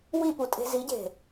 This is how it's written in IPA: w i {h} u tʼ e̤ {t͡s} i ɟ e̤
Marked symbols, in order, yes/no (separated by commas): no, no